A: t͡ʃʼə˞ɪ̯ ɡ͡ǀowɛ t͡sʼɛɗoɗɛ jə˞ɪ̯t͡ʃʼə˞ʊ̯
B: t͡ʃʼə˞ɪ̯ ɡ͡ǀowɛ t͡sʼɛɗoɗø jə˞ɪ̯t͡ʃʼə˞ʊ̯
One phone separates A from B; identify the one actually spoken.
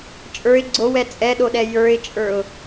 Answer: A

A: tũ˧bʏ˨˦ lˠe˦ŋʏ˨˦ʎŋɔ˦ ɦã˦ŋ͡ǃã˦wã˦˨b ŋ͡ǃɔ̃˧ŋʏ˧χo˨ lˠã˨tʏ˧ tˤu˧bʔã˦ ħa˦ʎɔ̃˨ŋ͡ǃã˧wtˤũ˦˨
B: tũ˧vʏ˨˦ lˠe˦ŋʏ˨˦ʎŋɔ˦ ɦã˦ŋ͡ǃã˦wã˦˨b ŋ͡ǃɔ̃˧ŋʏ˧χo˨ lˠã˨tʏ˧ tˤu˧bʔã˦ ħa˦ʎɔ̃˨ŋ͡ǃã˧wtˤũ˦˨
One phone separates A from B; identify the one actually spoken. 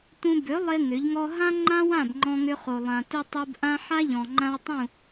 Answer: A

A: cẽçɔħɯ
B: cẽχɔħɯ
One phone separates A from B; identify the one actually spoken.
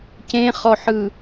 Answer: B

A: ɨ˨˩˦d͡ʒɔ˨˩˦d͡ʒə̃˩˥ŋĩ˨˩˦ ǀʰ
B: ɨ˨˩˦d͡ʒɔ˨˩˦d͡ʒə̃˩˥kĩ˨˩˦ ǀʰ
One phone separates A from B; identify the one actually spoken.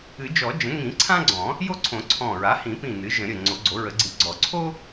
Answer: A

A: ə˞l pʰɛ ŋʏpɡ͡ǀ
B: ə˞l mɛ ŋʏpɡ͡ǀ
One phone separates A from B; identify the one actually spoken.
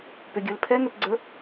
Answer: A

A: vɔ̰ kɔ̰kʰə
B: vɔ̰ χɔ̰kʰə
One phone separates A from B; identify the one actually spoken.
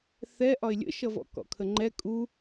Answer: A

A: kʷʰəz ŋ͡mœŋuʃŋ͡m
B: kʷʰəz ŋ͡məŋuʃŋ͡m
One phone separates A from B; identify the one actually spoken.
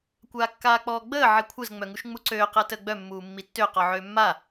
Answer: A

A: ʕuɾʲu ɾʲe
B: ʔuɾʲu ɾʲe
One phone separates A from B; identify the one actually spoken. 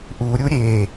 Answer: B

